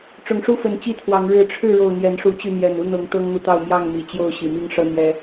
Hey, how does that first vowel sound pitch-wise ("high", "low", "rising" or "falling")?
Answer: low